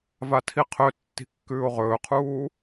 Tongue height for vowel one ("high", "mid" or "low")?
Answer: low